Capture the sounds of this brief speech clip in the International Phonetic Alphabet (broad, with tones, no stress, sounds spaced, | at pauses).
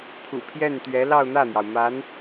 pʰ ṵ˨˩ pʰ j ɛ˥˩ n t̪ ɥ ɛ˧˥ l ɑ˥˧ ʊ̯ n̪ ä˥˩ n̪ j ɑ˩ ʊ̯ m a˧˥ n